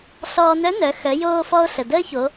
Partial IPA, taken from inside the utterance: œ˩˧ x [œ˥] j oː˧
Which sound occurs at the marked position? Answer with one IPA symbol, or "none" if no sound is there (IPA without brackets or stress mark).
œ˩˧